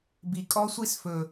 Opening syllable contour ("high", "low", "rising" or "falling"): low